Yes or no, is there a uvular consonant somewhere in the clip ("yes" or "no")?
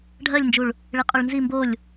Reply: yes